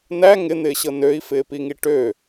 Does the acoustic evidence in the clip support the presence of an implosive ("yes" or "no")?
no